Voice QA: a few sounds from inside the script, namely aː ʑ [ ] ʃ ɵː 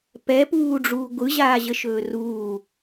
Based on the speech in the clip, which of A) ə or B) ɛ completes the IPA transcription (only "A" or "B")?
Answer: A